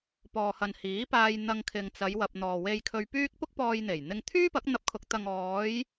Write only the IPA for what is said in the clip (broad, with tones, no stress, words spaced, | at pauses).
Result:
pɔː˨hɐ˨n hiː˨˥paː˧j n̪ɐ˧ŋkʰɪ˨ŋt͡sɐ˨˧jwɐ˨p̚ n̪ɔː˨we˧jkʰɵ˧ɥpyː˥k̚ pʊ˥k̚pɔː˧jn̪e˨˩j n̪ɪ˧ŋ t̪ʰyː˥pɐ˨˥k̚n̪ɐ˧p̚kʰʊ˨k̚ t̪ɐ˨ŋɔː˨˧j